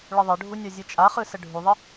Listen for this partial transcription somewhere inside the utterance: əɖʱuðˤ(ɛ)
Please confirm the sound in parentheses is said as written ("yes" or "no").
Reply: no